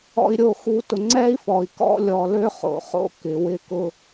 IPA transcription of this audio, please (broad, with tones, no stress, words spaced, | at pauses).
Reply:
ɔ̰˨i̯ɾʲo˨xu˨ tʊ˨ŋ͡ǀɛ˦i̯fɔ˨i̯ kɔ̰˦lʲɔ˨lø˦χo̰˨ χo̰˦ kɪ˨wɪ˦ kʊ˦